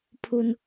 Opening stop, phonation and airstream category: aspirated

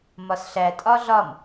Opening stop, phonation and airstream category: ejective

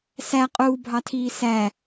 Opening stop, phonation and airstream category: ejective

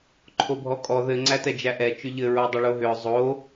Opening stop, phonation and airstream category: click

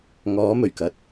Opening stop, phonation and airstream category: plain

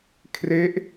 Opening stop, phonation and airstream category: aspirated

